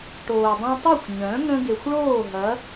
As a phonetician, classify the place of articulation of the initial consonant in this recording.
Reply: retroflex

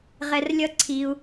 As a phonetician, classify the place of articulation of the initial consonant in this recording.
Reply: uvular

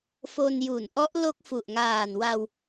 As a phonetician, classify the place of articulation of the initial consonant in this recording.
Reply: labial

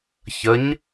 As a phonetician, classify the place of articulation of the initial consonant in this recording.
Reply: palatal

